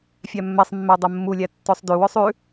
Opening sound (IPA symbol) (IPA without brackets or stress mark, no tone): fʲ